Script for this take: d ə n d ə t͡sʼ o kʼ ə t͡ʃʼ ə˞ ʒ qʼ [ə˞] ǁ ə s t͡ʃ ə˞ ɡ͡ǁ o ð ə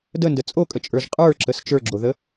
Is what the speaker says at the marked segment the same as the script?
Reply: yes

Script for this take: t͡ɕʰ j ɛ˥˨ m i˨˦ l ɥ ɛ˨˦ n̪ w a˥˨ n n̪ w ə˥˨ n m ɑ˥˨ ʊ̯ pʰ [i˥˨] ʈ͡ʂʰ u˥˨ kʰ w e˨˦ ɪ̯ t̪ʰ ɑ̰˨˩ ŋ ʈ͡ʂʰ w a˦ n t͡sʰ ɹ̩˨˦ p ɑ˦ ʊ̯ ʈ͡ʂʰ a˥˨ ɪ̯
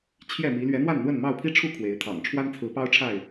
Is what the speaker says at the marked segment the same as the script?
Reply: no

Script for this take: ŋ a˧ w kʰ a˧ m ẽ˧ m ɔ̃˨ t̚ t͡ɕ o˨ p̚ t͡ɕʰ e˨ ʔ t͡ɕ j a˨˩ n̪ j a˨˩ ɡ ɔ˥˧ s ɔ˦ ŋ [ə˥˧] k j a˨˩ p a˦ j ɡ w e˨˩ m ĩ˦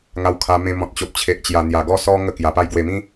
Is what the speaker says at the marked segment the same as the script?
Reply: yes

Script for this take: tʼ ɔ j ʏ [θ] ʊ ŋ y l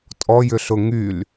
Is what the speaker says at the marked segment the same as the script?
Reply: no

